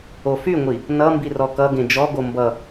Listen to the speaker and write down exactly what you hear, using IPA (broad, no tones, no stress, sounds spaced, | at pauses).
o f y ŋʷ i | n ʌ m b i r ɔ k ʌ ɡ ẽ d͡ʒ ɔ ɡ o m b ʌ